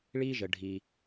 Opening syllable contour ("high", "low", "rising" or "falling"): high